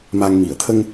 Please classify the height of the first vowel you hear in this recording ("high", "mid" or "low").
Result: low